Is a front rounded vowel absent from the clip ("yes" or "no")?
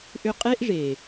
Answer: no